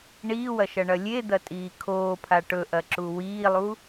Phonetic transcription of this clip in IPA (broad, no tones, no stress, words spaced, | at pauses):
ɳiːwɐʃɐɳɐ lʲed̪ɐtʼiː kʰoːpʰa ʈɵʔɐǁu wiːlˠu